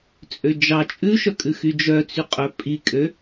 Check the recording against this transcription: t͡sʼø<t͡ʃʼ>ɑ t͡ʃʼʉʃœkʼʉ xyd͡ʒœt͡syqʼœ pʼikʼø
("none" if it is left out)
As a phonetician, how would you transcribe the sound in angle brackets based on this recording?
d͡ʒ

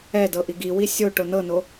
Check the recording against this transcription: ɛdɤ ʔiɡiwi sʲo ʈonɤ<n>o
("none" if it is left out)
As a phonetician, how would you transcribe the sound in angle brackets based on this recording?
n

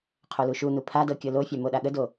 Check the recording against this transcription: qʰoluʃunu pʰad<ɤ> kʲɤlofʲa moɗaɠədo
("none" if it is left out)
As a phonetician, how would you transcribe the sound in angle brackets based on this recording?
ɤ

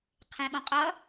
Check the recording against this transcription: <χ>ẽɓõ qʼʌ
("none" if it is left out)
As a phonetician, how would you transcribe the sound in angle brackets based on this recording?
qʰ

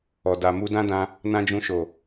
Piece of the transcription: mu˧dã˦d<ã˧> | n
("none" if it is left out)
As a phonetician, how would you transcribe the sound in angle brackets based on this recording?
ã˧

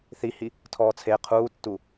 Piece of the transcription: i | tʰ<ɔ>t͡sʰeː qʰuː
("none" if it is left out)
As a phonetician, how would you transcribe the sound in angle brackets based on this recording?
ɔː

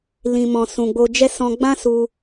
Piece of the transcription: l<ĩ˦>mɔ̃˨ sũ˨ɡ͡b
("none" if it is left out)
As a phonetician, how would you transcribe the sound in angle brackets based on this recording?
ĩ˨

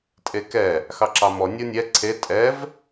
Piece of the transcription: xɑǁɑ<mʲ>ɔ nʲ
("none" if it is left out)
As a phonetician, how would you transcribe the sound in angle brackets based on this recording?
m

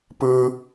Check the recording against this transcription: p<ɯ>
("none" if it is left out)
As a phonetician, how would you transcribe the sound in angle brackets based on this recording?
ɯ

